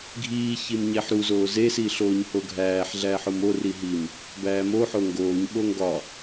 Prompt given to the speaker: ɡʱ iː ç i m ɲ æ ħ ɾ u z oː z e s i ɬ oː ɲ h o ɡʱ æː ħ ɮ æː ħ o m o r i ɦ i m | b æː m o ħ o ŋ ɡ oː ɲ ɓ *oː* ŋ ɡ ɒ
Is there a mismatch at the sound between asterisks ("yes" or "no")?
yes